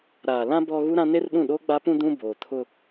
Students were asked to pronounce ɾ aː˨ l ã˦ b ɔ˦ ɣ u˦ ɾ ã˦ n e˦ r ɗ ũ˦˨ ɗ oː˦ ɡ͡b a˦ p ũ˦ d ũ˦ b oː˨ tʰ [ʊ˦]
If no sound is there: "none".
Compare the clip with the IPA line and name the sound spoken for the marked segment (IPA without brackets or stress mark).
ʊ˦